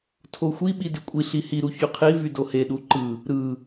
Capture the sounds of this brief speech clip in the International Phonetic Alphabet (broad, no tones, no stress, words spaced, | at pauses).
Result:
tʰoxʷiɓi dykʷʼiɬi hiɾu çyqʰivy doheɗu ǃɯ | ɾɯ